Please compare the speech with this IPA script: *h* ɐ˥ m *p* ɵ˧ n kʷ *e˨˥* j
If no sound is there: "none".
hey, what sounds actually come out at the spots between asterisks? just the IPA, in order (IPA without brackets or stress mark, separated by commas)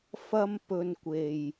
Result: f, p, e˨